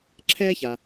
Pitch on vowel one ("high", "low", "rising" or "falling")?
high